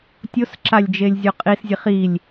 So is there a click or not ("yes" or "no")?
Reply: yes